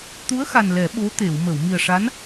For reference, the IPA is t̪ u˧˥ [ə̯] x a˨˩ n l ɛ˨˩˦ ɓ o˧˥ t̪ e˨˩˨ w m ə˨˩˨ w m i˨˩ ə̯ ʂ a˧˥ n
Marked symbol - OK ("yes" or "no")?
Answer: yes